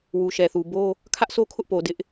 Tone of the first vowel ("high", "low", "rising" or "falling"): low